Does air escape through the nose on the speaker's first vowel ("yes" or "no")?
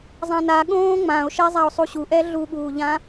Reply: yes